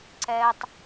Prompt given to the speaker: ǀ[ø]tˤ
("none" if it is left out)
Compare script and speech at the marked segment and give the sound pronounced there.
ɛ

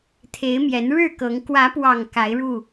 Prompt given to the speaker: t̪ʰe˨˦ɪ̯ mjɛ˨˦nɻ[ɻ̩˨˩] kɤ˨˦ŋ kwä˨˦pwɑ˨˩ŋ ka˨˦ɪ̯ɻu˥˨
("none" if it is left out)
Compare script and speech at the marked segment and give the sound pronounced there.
ɻ̩˥˨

